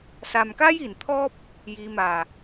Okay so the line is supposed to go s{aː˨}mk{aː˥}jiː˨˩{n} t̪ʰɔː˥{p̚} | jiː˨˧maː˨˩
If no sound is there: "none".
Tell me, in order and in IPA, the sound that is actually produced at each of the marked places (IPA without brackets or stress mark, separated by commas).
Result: aː˨, aː˥, n, p̚